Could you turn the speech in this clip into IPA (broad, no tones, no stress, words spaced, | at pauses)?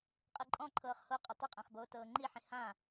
qʼɯǃʼɔ̃ǃʰɤːχ hoqʼɛ tˤɯqʼãχboː tɤːŋ͡ǃiħĩ hã